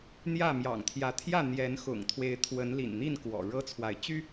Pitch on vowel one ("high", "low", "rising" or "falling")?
falling